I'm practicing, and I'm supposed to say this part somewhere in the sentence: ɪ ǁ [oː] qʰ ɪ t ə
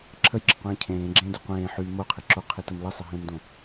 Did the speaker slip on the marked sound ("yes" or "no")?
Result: yes